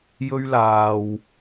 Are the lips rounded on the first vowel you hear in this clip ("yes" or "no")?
yes